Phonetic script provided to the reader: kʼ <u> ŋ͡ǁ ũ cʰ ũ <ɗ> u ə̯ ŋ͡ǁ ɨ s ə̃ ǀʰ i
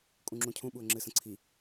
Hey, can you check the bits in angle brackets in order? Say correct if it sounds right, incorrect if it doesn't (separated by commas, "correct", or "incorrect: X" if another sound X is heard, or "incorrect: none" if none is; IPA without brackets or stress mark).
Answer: incorrect: ũ, incorrect: ɓ